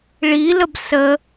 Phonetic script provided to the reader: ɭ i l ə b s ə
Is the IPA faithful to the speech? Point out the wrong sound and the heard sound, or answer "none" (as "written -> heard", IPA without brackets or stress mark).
none